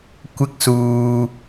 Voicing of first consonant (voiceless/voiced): voiceless